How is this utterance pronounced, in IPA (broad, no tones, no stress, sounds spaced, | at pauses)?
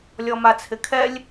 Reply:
lʲ ɔ m a t͡sʰ ɪ kʰ ɛ lʲ